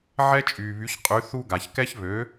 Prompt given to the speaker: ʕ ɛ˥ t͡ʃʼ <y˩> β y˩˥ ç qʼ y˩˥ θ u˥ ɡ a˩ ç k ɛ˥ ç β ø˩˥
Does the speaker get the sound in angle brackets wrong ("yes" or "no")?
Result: yes